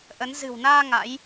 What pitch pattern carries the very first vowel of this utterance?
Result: rising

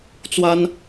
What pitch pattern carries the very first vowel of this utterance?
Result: high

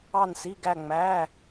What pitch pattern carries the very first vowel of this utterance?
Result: falling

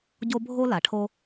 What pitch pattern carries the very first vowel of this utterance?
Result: high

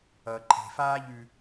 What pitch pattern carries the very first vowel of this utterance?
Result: low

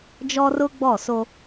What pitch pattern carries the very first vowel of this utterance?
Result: high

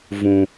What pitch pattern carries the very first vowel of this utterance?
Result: high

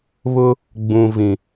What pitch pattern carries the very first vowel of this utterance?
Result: high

